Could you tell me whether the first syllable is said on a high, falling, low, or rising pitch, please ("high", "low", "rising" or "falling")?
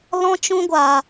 high